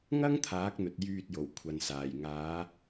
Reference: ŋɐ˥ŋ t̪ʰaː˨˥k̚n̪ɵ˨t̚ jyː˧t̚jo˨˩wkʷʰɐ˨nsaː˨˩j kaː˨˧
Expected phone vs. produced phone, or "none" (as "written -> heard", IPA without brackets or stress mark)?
k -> ŋ